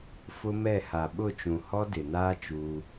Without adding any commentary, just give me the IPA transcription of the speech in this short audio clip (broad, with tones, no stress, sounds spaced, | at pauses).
f ʊ˦ m ɛ˦˨ h a˨ ɓ ʊ˦˨ t͡ʃ ũ˨ h ɔ˦ d ɪ˨ n aː˦ t͡ʃ uː˦